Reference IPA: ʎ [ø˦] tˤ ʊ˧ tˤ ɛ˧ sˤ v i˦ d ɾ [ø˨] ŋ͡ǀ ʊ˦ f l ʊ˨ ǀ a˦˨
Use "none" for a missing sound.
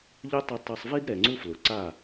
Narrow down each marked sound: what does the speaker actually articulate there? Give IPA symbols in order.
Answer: ø˦, ɛ˨

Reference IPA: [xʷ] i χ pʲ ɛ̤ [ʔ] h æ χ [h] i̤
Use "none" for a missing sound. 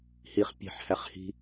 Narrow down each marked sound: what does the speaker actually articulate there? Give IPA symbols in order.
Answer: h, ħ, h

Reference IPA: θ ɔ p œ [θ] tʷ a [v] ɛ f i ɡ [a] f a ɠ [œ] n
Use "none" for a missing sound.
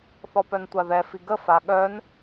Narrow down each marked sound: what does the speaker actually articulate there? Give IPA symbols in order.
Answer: n, ð, ə, œ

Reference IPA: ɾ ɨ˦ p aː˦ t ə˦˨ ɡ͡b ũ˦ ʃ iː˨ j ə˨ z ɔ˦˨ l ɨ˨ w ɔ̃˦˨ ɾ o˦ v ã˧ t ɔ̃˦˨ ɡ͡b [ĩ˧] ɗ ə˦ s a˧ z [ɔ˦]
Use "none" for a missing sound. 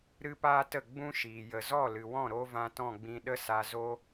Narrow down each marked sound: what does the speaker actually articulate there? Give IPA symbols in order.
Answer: ĩ˧, o˦

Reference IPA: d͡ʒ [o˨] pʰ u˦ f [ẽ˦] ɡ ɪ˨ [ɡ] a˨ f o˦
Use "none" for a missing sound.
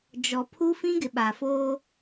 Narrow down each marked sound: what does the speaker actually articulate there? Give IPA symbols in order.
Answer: ɔ˨, ĩ˦, ɓ

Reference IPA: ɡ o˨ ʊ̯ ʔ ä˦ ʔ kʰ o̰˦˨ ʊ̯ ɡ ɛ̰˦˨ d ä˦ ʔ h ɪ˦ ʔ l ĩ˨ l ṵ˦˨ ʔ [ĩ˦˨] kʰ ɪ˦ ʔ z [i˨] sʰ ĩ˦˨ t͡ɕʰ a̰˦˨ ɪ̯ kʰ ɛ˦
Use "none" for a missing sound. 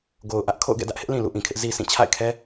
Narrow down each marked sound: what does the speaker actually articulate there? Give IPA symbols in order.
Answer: ĩ˨, i˦

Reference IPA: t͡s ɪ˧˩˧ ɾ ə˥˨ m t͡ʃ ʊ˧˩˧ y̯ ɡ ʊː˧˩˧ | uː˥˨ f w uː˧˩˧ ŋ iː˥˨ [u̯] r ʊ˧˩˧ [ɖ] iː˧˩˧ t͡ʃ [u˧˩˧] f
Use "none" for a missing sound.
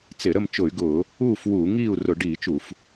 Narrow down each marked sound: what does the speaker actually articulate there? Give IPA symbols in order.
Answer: u̯, ɖ, u˧˩˧

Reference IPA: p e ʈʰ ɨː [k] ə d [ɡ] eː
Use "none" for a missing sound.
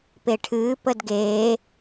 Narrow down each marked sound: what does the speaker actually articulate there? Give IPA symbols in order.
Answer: p, ɡ

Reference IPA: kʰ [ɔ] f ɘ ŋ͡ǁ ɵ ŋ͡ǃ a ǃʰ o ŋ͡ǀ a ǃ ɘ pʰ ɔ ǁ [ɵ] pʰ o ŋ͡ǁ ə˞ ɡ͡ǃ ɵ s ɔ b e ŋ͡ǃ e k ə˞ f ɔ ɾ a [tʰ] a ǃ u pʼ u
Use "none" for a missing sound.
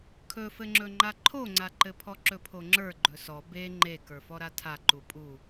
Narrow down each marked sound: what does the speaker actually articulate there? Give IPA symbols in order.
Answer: ɵ, ɵ, tʰ

